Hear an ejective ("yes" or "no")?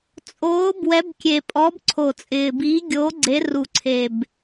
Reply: yes